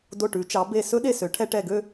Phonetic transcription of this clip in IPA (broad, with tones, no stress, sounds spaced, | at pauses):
d o˧˩ ʈ ʉ˩˧ t͡ʃ ɑ˩˧ b e˧˩ s ɵ˥ ɗ e˧˩ s ø˩˧ ʈʰ ɛ˧ ʈ ɛ˧˩ ɡ ø˥˧